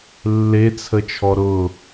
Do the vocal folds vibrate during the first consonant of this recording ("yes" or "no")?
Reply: yes